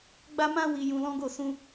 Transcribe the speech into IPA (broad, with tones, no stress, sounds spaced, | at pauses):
ɡ͡b a˦ m ã˦ w i˧ j ũ˧ l ɔ̃˦ ɡ o˦˨ s ũ˧